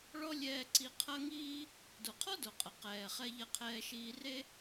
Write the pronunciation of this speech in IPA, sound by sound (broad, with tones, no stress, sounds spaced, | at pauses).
ɭ ɔ˥ lʲ ɛː˧ ǀ i˧ qʰ ɐ˥ ŋ iː˥ | d o˩ qʰ ɔ˥ d o˩ qʼ ɐ˩ q ɛː˩ χ ɛ˧ ʎ ɐ˧ qʰ ɛː˧ ʃ iː˧ r e˥